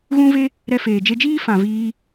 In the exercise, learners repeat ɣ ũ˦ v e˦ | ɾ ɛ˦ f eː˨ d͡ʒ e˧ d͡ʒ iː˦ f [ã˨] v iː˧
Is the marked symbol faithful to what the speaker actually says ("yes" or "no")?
yes